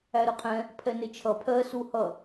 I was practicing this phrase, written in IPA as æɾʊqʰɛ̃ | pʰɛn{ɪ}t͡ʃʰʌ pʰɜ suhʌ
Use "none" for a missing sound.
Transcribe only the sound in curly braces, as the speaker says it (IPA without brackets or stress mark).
ɪ